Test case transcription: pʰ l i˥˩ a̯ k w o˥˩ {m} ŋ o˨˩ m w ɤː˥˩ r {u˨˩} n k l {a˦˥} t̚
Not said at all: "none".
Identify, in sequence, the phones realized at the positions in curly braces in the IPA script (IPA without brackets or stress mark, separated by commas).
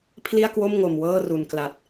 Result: m, u˨˩, a˨˩